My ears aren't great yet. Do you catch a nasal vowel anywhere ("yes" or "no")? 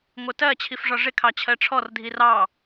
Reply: no